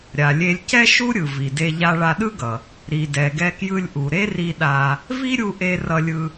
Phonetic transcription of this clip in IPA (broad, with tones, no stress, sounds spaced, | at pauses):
ɾʲ a˩ lʲ e˧ lʲ c ɛ˥ ʃ u˥ ɾʲ ɯ˩ v i˩ d e˧ ʎ a˧ ɭ a˧ ɗ ɯ˥ ɡ ʌ˩ | ɾ i˩ d ɛ˩ ɡ ɛ˧ k j ɯ˧ lʲ ʔ u˩ ɾ e˥ r i˧ ɗ a˧ | v i˥ ɾʲ u˧ ʔ e˧ r ʌ˧ lʲ ɯ˧